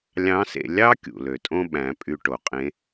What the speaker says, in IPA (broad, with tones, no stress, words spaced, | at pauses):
lʲɑ̃˧˥sḛ˧ lʲɑ˥ kʲṵ˩lø˩tʼõ˥ ɓæ̃˩˧pʼy˧ʈo˩qʼẽ˧˥